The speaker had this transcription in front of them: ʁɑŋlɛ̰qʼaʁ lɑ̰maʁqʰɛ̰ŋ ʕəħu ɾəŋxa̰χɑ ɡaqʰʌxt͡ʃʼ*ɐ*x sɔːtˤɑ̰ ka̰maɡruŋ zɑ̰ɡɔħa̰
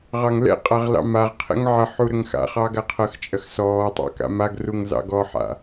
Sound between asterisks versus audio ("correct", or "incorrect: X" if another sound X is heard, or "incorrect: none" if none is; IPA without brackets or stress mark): correct